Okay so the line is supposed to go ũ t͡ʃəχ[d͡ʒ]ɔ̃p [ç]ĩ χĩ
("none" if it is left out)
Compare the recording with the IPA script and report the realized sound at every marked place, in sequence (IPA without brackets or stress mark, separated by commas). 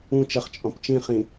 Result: t͡ʃʼ, t͡ʃ